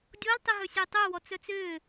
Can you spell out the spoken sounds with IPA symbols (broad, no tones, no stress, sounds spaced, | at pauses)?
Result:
dʲ ɔ l tˤ e ɦ ɵ sʲ œ tˤ œ w ɔ t͡s œ t͡s ø